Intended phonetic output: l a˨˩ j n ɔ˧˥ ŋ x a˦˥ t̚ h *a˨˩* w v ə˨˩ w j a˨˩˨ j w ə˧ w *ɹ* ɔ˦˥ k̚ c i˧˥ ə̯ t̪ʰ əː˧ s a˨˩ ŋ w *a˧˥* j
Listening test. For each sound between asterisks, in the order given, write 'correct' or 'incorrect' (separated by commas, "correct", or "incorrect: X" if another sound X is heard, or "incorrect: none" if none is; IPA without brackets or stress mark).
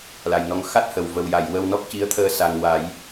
incorrect: ə˨˩, incorrect: n, incorrect: a˨˩˦